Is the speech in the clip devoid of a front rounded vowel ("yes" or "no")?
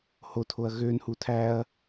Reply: no